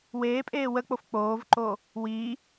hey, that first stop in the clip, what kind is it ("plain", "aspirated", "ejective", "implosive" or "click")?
ejective